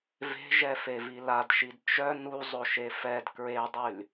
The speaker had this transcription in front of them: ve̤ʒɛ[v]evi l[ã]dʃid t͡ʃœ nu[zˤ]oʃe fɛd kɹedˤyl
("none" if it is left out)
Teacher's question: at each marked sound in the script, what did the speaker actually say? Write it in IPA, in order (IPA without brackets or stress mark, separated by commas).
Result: f, a, zˤ